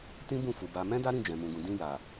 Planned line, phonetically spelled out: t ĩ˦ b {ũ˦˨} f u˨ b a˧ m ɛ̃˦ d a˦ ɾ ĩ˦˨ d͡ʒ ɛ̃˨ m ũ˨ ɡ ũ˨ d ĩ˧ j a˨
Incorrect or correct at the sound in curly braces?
correct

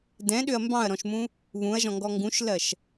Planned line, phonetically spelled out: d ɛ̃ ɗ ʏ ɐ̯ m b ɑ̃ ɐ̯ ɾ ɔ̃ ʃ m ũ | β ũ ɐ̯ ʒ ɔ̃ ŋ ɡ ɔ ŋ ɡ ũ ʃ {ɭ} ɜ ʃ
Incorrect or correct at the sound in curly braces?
incorrect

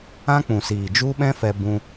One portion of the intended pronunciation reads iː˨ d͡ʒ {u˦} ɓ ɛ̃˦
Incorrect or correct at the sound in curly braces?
correct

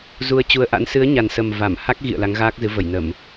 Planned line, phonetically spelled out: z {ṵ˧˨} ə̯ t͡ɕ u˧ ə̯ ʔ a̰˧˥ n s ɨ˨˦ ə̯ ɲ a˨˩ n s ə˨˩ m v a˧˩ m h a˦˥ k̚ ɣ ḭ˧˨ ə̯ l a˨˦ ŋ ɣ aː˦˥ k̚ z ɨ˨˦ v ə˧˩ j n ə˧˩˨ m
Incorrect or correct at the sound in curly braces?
incorrect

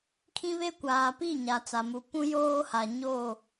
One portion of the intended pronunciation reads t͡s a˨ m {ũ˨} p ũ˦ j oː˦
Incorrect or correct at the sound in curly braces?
incorrect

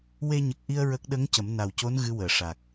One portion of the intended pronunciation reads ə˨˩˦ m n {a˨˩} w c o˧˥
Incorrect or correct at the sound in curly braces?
correct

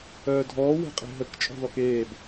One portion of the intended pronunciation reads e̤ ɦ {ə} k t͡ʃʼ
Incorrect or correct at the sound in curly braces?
correct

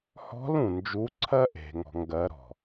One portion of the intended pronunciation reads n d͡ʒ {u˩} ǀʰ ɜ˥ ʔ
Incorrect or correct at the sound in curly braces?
incorrect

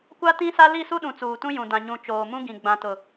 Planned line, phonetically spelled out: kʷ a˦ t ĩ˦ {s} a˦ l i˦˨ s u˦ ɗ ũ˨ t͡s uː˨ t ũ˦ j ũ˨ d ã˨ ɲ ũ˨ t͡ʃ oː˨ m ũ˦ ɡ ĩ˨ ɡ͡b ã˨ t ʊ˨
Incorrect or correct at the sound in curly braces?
correct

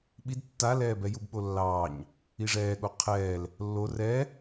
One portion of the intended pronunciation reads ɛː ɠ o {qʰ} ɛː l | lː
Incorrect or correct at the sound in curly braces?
correct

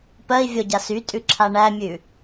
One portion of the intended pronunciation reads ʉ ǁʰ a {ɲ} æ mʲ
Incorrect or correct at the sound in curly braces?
incorrect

